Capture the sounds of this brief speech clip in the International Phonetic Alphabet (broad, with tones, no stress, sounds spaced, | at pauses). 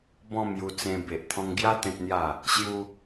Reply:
b ɔ̃˥˧ m j u˧ t͡s ẽ˧ b e˨ ʔ t̪ʰ ɔ̃˧ ŋ ɡ j a˦ t̪ ẽ˦ t̚ n̪ j a˥˧ | ɕ j u˦